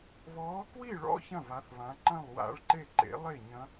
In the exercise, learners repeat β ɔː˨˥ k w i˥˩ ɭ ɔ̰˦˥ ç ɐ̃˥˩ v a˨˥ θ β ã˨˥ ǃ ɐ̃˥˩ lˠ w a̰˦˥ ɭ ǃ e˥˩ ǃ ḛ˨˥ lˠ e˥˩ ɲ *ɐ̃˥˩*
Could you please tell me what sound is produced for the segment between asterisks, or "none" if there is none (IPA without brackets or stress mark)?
ɐ̃˦˥